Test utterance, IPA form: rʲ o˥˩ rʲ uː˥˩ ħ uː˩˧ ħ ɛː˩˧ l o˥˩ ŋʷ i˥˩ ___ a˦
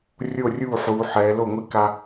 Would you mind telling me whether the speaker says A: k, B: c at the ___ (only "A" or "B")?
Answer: A